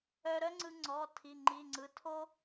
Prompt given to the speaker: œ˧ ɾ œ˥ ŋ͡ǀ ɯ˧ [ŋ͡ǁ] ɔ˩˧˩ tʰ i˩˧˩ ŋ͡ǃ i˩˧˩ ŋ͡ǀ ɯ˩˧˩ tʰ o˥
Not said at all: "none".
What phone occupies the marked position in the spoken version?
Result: ŋ͡ǀ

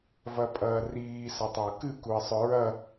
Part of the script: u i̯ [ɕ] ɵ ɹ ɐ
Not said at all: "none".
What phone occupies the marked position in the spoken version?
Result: sˤ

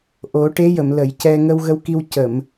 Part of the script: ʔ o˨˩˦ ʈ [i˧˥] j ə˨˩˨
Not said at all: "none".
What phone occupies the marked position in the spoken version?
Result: e˧˥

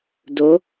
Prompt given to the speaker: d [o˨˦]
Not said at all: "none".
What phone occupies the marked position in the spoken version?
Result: o˨˦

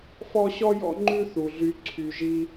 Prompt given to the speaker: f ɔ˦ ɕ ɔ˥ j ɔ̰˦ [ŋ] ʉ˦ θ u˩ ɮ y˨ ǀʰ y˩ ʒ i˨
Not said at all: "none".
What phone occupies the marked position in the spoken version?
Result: ŋ͡ǃ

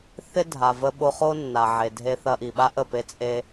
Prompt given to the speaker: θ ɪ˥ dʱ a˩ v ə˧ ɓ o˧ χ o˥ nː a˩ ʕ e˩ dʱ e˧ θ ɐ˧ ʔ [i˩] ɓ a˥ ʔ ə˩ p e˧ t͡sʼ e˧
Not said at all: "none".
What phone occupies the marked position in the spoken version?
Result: i˩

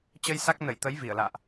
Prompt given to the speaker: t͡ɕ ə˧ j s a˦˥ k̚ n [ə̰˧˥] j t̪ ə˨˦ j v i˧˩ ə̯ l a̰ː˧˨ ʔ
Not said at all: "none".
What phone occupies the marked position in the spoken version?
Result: ə˧˩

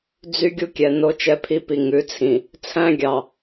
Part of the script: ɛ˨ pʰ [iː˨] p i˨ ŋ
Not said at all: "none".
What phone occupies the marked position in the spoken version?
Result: i˨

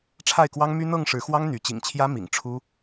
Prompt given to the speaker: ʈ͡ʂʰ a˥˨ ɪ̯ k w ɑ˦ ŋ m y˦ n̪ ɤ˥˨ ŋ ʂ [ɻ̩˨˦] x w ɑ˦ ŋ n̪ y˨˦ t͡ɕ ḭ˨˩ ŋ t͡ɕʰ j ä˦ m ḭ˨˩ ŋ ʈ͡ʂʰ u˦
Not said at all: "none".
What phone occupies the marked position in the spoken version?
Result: ɻ̩˨˦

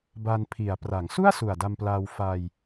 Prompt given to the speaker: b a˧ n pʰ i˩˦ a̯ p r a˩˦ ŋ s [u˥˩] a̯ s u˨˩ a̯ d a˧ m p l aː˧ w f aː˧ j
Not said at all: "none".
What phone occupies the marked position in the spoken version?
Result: u˥˩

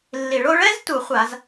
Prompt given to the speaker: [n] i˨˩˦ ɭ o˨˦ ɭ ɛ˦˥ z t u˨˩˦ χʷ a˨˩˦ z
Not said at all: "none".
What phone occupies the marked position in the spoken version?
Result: lː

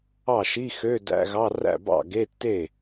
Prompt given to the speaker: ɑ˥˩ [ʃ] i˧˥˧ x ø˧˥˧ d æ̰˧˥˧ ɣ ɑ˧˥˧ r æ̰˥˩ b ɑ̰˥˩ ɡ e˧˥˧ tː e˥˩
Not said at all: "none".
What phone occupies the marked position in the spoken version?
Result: ʃ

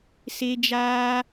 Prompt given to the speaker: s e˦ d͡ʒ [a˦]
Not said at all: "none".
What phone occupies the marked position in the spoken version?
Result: aː˦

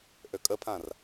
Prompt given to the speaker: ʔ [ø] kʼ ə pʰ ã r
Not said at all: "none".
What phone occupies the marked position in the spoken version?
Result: ø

